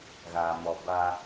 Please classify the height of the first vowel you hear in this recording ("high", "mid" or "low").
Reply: low